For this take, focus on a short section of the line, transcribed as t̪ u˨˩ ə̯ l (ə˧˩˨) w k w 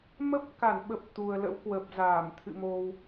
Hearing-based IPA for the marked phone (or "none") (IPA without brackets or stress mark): ə̰˧˥